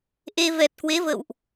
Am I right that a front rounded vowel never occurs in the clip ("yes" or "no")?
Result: yes